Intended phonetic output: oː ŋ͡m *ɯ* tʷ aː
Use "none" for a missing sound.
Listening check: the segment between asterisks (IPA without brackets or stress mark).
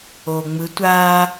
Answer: ɯ